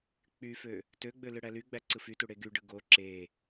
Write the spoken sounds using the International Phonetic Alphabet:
k͡p y f ø | t ø ɡ͡b ø l ɯ ɽ æ l y ɡ͡b æ ǀ ɯ f y t u ɽ e ɡ y ɖ ɯ ɡ o ǁ e

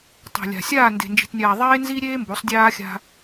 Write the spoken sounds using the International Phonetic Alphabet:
tˤ e̤˨ lʲ a̤˨ sʲ aː˦˨ n d e̤˨ n d͡ʒ i̤˨ t nʲ aː˨ ðˤ eː˦ n z i˦ ɾʲ eː˦ m b o˨˦ sˤ dʲ aː˦ xʲ a̤˦

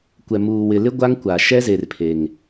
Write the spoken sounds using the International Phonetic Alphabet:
kʷ ɛ˨ m uː˨ w ɪ˨ l ɪ˦ ɡʷ a˦ ŋ kʷ a˨ ʃ ɛ˦ z e˨ r pʰ e˨ ŋ

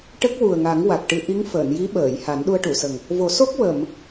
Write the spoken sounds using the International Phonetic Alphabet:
ʈ ə˦˥ k̚ w u˨˩ ə̯ ŋ a˨˩˦ ŋ w a˨˩ k̚ ʈ ɨ˧ ʔ i˧˥ ŋ f əː˨˩˨ n j i˧˥ ɓ əː˨˩˨ j h a˨˩˦ n ɗ u˧ ə̯ ʈ u˨˩˨ s ə˨˩ ŋ | v o˨˩˦ s o˦˥ k̚ w ə˨˩˨ m

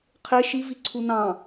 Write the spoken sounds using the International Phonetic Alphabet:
qʰ e ʃ i v i ǀʰ u n ɑ̃

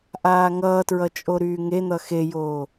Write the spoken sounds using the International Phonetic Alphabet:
ʔ aː ŋ ʌː t ɹ ʌ t͡ʃʼ o ɾ yː ŋ e n̪ ʌ x e j oː

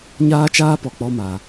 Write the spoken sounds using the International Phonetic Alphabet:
ɲ aː˦ t͡ʃ aː˦ p ɔ˨ k͡p ɔ˦ m a˨

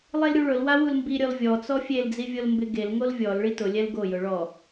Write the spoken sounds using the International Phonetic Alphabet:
lˠ e l ɾʲ u ɭ ʊ l w a w u l m b i ɾʲ ɔ l vʲ ɔ t͡s ɔ fʲ e l d͡z i vʲ o l m b ɪ ɡ e l ŋ o l vʲ ɔ l ɭ i t ʊ lʲ ɛ l ɡ o j ʊ ɭ ɔ

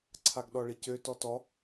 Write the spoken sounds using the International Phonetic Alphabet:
ǀʰ a ɡ ɗ ɔ ɭ i c ø t ɔ t ɔ

